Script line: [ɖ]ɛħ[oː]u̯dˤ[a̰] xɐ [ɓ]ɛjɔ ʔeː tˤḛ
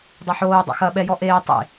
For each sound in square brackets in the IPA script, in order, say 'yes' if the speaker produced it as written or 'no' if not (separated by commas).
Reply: no, yes, yes, yes